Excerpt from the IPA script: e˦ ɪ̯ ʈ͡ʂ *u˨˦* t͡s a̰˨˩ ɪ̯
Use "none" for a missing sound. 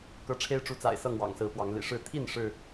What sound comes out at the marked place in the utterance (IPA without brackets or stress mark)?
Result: u˨˦